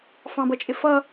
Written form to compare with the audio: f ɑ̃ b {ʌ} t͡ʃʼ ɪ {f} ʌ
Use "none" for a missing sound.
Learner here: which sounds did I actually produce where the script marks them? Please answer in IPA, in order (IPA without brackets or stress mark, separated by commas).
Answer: ʌ, f